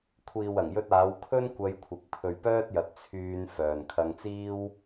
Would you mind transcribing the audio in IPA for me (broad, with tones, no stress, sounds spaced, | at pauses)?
kʷʰ iː˨ w ɐ˨˩ ŋ j ɵ˧ t̚ aː˨˧ w kʰ ɵ˥ n kʷ ɐ˧ j kʷʰ ɪ˨ k̚ pʰ ɵ˨ ɥ p œː˥ t̚ j ɐ˨ t̚ t͡sʰ yː˧ n f œː˨ n kʰ ɐ˧ ŋ t͡s iː˥ w